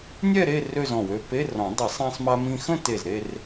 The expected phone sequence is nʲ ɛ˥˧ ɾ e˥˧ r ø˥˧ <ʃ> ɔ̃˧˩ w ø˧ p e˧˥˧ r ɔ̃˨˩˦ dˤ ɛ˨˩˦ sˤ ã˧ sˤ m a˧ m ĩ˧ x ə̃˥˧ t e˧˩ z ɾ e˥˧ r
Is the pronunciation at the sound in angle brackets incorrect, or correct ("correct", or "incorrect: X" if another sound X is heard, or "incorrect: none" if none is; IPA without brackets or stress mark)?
incorrect: z